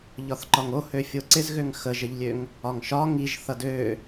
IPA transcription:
ʎ ɒ θ ǃ ɒ ŋ o h ø fʲ o ǀ ɪ z ɣ ø ŋ x ə ʒ ə ʎ lʲ ø ŋ | ɒ ŋ ʃ ɒ ŋ i ʒ θ ʌ d ø

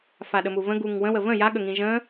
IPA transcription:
f a ɗ ə m u v ə̃ ɡ u ŋ w ə̃ w ə v ə̃ j a ɠ ə ŋ ĩ ʒ ə̃

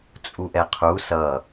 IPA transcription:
t͡sʼ u ʔ ɛ qʰ u s ʌ

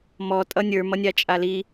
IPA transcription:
m ɔ tʼ ʌ nʲ ə˞ m ʌ nʲ a t͡ʃʼ a l i

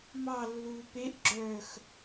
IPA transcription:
m ɑ lː uː p e ʔ ɡ͡ǁ œː x

